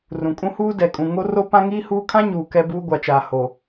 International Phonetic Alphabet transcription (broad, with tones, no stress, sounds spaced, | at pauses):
r ũ˨ kʼ ũ˦ h uː˦ d ɛ˨ kʼ ũ˨ ŋ o˦ r o˦ p ã˦ ŋ iː˦ h uː˦ kʰ ã˦ ɲ uː˨ k ɛ˦ b uː˦ ɡʷ a˨ t͡ʃ aː˨ h o˨